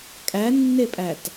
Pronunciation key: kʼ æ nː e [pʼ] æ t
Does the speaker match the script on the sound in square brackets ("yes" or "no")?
yes